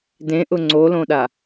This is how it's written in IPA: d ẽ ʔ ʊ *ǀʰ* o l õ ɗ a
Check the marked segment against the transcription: incorrect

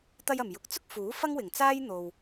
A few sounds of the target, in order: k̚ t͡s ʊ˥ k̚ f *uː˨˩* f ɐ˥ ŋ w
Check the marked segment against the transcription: incorrect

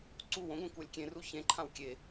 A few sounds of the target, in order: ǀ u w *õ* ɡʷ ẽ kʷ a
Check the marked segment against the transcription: correct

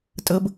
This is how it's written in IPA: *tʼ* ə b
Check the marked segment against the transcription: correct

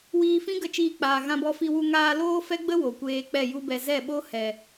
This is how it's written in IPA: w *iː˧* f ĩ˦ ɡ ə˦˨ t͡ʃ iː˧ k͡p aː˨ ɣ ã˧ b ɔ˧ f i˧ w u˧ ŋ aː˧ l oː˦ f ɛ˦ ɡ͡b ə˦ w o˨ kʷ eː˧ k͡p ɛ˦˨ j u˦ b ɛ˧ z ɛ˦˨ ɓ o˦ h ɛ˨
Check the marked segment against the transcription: correct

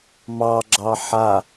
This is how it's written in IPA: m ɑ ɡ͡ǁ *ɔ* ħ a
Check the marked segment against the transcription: incorrect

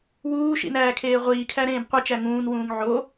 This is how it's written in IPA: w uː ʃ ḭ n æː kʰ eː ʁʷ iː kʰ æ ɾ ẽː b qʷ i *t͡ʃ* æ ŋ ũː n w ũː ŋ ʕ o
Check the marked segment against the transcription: correct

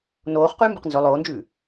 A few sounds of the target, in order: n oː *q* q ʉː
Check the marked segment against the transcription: incorrect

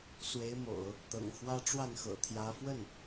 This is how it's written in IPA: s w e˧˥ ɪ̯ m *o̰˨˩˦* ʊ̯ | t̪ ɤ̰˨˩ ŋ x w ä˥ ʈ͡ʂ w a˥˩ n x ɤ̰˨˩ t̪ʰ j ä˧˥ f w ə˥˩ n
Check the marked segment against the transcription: correct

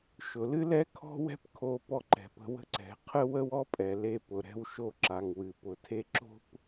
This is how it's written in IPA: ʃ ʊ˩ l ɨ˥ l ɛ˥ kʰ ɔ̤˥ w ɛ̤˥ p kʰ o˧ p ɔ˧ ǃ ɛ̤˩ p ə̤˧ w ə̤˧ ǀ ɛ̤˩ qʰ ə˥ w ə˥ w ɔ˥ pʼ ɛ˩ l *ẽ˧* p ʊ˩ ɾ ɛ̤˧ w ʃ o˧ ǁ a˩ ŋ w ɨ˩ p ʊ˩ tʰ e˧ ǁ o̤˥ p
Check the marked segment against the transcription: incorrect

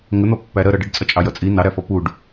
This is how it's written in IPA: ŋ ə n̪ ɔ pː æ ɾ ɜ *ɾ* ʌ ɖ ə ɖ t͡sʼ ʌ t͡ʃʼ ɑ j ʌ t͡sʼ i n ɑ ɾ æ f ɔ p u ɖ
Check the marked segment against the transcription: correct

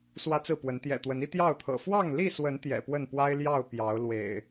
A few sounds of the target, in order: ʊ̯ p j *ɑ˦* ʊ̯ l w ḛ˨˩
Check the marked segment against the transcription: incorrect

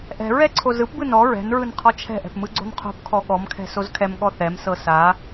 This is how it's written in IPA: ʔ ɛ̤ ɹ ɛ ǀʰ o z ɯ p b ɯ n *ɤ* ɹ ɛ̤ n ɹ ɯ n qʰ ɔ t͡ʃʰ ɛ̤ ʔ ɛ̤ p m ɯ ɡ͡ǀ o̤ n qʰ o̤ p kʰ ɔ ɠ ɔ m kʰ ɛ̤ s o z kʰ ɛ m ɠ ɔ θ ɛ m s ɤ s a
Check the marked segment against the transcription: incorrect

